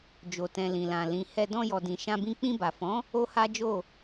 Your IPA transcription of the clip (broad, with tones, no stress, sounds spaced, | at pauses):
d͡ʒ o˨ t ɛ̃˨ l ĩ˨ l ã˨ l ĩ˨ h ɛ˧ d ɔ̃˧ j ɔ˨ d ĩ˨ ʃ ã˧ b ĩ˧ k͡p ĩ˧ b a˨ f ɔ̃˨˦ | o˦ h a˦ d͡ʒ o˦˨